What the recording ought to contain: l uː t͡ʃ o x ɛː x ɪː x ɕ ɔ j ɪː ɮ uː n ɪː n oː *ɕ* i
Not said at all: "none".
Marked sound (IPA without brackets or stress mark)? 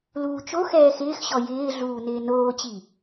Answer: t͡ɕ